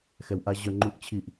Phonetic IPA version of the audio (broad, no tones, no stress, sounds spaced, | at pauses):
x ɛ w ʔ a ʑ œ ŋ͡ǃ u ʔ t͡ɕʰ i ʔ